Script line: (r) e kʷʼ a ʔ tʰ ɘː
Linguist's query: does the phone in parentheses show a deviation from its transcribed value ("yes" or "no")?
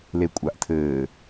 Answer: yes